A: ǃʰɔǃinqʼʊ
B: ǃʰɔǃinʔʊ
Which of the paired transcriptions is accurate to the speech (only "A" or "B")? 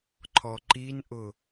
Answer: B